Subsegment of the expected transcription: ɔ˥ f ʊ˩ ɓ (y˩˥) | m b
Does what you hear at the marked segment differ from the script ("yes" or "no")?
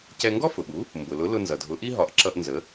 yes